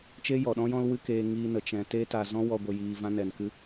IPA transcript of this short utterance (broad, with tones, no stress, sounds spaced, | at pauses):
t͡ʃ eː˦ j ɔ˨ ɗ ɔ̃˦ j ɔ̃˦ l w ɨ˦ k eː˧ ŋ iː˧ n ə˨ t͡ʃ ɛ̃˨ t e˦ t a˧ z ɔ̃˦ w ɔ˧ ɡʷ ə˨ j iː˨ v ã˧ n ɛ˨ n k ɨ˧